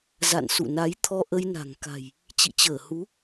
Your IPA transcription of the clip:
za̰˧˨nsṵ˧˨na˨˦j t̪ʰɔ˧ʔə˧jna̤˨˩ŋ ka̤˨˩j | t͡ɕḭ˧˨t͡ɕəː˧˩hu˨˦

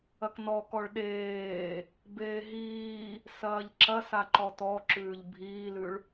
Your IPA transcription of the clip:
ɐknɔkɔɭ ɗeː | beːɦiː | sɐːʎǁɐs aǃɔtɔǁʉːʎ bʱiːlʉɭ

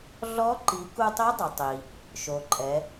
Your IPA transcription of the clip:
ɮɔ˧˥ǃi˩˧ ku˧tˤi˧˥dˤʊ˩tˤi˩ | ʃo˩ǃʼɛ˩˧

